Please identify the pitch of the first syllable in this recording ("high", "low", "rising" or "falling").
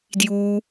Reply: low